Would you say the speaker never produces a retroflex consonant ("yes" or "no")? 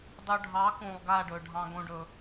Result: no